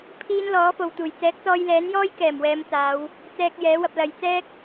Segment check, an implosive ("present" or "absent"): absent